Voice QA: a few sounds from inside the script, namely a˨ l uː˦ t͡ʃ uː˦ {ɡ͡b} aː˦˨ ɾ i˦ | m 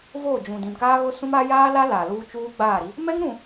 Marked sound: correct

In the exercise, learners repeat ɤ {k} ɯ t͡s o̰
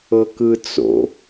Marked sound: correct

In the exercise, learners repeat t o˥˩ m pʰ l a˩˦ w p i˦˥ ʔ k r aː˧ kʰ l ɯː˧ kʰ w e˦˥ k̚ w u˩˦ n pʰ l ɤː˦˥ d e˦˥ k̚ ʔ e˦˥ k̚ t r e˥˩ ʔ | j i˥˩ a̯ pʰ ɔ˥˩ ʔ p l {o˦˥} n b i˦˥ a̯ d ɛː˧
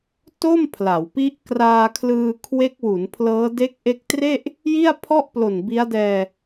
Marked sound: incorrect: o˨˩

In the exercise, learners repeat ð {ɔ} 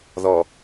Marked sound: correct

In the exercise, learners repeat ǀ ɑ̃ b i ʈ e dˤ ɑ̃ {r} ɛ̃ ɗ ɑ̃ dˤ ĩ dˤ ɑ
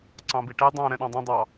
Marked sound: incorrect: ɾ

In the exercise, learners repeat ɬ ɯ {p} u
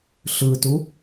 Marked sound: incorrect: t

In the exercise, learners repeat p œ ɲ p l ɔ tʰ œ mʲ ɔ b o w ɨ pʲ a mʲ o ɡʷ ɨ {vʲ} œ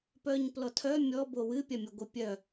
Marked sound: incorrect: pʲ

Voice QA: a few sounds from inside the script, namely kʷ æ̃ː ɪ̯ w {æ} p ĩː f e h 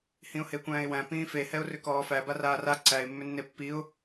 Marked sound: incorrect: æ̃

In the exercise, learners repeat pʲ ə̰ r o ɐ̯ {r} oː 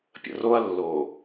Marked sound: incorrect: lː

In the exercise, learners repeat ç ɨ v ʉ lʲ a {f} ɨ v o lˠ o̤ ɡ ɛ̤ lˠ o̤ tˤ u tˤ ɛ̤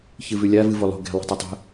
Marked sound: incorrect: v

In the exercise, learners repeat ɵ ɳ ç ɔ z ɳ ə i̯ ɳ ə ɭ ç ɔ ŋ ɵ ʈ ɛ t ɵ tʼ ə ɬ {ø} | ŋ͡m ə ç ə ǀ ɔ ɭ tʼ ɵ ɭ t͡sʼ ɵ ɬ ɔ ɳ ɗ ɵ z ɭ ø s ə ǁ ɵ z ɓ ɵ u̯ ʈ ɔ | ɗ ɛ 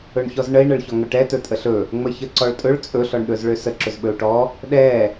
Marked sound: incorrect: ɵ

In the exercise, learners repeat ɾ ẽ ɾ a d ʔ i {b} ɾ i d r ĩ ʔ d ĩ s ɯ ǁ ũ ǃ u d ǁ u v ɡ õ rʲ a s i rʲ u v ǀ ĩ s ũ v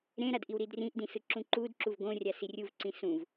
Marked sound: incorrect: w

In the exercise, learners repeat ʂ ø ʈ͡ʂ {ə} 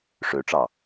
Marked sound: incorrect: ɑ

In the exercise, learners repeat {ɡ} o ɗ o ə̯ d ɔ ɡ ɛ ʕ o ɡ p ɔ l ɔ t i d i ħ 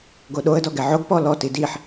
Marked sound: correct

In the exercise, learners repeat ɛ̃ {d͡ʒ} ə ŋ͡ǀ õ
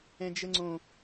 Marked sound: correct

